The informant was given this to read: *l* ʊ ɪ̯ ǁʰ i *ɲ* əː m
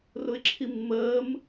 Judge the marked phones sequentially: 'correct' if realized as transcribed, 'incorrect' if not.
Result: incorrect: r, incorrect: mː

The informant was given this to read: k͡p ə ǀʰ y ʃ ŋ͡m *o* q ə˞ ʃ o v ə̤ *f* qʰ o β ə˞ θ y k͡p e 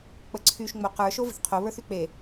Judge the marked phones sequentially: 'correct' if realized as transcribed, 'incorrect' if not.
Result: correct, incorrect: θ

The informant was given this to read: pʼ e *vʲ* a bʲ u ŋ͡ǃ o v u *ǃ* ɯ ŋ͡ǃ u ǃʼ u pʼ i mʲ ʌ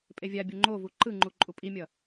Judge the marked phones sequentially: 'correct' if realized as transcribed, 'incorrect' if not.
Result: correct, correct

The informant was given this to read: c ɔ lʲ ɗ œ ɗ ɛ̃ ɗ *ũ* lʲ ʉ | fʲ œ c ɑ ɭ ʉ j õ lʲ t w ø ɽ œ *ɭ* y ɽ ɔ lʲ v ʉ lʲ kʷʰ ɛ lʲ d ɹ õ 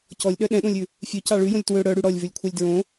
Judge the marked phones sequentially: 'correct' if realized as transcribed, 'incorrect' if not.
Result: incorrect: õ, incorrect: ɽ

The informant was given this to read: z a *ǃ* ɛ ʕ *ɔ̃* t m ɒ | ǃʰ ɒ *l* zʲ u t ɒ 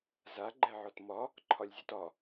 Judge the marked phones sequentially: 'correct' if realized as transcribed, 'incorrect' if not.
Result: incorrect: ɡ͡ǃ, incorrect: ɔ, incorrect: lʲ

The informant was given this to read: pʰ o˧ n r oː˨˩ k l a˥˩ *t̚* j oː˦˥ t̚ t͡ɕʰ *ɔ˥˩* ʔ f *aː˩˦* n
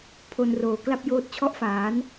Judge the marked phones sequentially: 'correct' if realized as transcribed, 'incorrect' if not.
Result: incorrect: p̚, correct, correct

